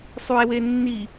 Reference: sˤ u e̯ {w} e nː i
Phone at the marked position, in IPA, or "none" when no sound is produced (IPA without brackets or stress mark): w